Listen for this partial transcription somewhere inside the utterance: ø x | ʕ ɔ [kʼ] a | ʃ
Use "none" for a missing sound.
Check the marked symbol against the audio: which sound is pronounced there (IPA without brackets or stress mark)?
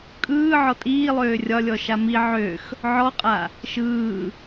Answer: qʼ